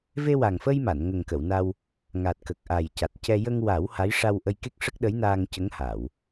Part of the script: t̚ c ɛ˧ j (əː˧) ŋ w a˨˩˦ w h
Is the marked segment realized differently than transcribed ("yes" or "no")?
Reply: yes